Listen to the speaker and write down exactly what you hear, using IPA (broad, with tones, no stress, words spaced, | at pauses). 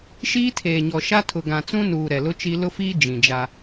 ʃiː˦tʰeː˨ɲɔ˨ ʃa˦tʰʊ˨ ɡã˨t͡sũ˦nuː˨ ɾɛ˨lʊ˦t͡ʃi˦ lʊ˦fiː˦ d͡ʒĩ˨d͡ʒa˦